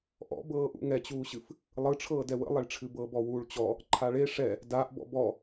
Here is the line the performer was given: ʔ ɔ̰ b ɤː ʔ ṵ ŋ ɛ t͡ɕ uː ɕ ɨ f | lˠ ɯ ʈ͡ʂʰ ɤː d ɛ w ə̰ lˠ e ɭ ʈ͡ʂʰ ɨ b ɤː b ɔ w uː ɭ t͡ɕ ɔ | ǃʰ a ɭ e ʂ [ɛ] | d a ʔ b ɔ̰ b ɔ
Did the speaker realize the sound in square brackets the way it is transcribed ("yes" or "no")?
yes